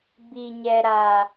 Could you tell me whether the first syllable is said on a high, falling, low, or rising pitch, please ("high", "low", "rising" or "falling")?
high